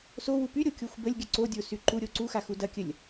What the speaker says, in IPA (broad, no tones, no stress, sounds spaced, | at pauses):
s o w u p y ɾʲ o kʲ o xʷ b ə lʲ ɡʲ ə ǀ o dʲ o s y ǃ u ɾʲ o ǀ u x a x u d ɐ kʲ ə lʲ